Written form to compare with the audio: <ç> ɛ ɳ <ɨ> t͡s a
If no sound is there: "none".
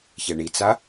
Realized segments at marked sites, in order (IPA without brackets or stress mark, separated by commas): ç, i